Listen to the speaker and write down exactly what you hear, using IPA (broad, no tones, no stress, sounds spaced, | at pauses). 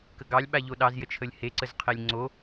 k ə ɡ ɑ lʲ ɓ a ʎ o ɗ ɑ z j ə t͡ʃʰ ə lʲ h e ǀ ə z qʰ e lʲ ŋ͡ǀ o